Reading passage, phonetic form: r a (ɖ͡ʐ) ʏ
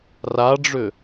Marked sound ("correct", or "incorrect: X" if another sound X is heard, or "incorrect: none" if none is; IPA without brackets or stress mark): correct